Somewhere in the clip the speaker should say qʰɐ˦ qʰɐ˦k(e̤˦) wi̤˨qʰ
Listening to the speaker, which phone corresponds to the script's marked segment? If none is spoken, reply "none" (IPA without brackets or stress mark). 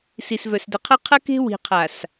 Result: e̤˦